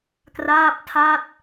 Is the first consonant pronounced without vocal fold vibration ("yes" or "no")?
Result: yes